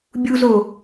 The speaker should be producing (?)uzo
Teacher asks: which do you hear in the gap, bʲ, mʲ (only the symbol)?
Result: bʲ